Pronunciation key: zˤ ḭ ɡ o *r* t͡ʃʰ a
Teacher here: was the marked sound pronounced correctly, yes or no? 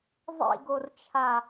yes